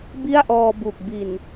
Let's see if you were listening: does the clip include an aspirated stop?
no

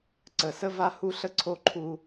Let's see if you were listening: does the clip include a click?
yes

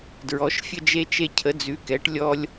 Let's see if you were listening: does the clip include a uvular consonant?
no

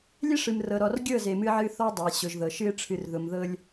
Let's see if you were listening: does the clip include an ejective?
no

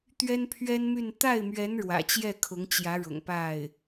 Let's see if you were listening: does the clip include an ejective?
no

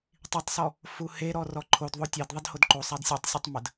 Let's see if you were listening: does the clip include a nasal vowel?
no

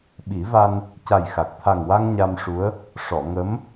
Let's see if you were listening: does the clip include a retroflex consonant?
yes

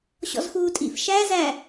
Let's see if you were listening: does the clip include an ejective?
yes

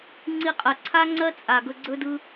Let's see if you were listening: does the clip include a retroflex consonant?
no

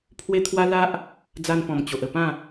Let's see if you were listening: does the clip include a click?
no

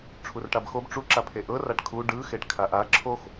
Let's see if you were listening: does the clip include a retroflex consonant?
yes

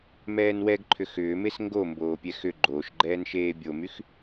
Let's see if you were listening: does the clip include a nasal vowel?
no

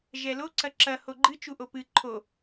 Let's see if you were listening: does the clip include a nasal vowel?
no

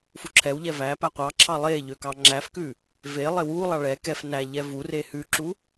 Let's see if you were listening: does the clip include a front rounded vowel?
yes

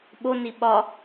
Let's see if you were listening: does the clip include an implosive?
yes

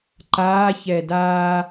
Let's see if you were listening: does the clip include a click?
yes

